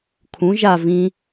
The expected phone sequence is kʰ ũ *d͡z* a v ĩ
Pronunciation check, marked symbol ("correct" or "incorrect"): incorrect